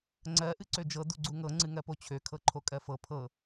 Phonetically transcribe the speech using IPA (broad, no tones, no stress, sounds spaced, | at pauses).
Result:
ŋ͡ǀ ɜ ʔ ɨ ǀ ø d͡ʒ ɤ d u ɡ͡ǀ u ŋ ɤ ŋ͡ǀ ɨ ŋ ɜ p o t͡ɕʰ ø kʰ ɤ ǃʰ o kʼ ɜ f ɤ pʰ ɤ